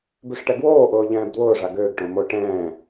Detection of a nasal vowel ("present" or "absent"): present